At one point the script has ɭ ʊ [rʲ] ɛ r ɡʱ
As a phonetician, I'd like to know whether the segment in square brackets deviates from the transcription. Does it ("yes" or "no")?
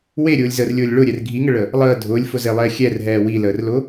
yes